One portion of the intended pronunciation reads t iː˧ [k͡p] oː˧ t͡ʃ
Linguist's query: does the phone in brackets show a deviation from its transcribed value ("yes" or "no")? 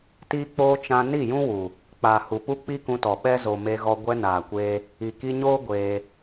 no